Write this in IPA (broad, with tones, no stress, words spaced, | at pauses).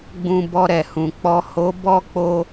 ɡ͡bũ˧bɔ˧ɾɛ˨hũ˨ k͡pɔ˨ ho˨˦bɔ˦˨k͡po˧